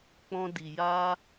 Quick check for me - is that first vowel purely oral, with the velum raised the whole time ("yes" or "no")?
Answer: no